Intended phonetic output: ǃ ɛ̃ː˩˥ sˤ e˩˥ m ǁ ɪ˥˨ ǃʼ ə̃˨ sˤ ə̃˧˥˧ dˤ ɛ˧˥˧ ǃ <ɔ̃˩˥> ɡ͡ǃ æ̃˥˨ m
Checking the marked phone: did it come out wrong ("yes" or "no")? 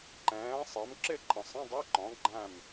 no